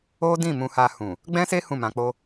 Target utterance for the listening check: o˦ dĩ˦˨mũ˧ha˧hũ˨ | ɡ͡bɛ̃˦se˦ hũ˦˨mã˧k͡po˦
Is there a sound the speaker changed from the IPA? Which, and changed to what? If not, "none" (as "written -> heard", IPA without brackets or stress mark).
none